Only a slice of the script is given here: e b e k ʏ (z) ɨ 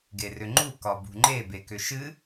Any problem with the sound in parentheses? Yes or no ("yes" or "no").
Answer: yes